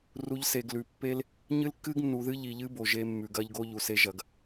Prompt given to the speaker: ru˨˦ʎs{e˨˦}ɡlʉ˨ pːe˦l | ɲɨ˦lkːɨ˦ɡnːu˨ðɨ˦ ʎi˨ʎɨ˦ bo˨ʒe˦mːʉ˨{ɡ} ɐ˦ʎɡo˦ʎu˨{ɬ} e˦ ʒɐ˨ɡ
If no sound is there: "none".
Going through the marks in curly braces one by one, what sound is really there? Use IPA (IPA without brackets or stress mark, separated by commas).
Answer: e˨, ɡ, s